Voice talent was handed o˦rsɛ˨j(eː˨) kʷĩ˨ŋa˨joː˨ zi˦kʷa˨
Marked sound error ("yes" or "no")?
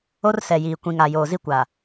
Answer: yes